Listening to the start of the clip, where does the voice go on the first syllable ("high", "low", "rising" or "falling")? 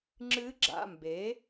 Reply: rising